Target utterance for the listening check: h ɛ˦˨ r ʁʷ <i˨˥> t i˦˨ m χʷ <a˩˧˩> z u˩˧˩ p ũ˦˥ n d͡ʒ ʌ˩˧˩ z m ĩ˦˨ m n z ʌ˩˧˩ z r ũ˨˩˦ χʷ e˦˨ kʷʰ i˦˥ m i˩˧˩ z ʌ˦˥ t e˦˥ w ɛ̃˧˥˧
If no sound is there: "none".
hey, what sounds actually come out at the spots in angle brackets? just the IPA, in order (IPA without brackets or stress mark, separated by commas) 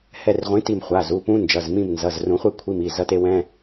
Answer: ĩ˨˥, a˩˧˩